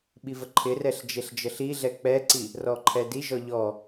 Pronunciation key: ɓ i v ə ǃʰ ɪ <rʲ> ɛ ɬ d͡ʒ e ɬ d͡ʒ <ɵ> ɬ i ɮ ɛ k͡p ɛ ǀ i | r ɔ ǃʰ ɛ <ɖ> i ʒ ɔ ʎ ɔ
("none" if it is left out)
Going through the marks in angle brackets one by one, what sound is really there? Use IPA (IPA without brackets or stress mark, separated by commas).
r, ɤ, d